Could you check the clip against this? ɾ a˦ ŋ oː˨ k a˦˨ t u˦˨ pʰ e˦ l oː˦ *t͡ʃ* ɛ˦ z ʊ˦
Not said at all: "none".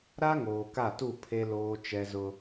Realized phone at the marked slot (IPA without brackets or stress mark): t͡ʃ